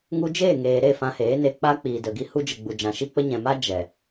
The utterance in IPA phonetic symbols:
ŋu˧d͡ʒeː˦˨ŋeː˨ ɾe˦˨ fã˧heː˨˦ne˧ k͡pa˦k͡piː˨də˨ ɡi˧hu˧d͡ʒə˨ ɡ͡bu˨d͡ʒã˨ʃi˦k͡pə˦ ɲɛ̃˨ma˦ d͡ʒɛ˨

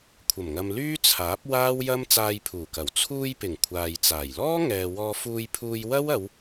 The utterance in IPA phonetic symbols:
kʷʰɐ˨˩mŋɐ˨m lyː˥t͡sʰaː˨˥p̚ waː˥wjɐ˥m t͡saː˧jpʰuː˨˩kɐ˨˩w t͡sʰuː˧j pɪ˨˩ŋ kʷʰaː˨jt͡saː˨˩j lɔː˥ ŋɛː˨ wɔː˧fuː˧jpʰuː˧j wɐ˥wɐ˨˧w

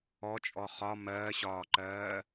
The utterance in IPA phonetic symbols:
ɔt͡ʃʼɔ χɒ mɜːɕɒːǃɜː

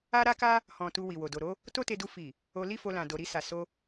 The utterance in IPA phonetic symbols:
a˦ɾa˦ka˦ | hɔ̃˨ tu˧wi˨wo˨ do˨ ɾo˨˦ | to˦te˧du˧ fi˨ | o˧li˦fo˧lã˨ do˨ɾi˧sa˨ so˧

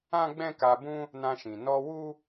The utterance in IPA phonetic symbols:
ã˦ɡ͡bɛ̃˦ka˧bũ˦ | nã˧ʃĩ˨ nɔ˧wu˦

